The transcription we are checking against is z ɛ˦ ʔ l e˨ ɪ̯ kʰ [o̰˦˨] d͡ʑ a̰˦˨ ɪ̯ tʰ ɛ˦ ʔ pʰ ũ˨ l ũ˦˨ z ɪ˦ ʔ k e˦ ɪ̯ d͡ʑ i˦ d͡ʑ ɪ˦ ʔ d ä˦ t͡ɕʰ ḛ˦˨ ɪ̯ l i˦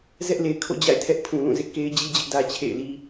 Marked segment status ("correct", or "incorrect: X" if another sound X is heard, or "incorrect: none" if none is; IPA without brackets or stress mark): correct